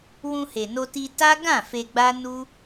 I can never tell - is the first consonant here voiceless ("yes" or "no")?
no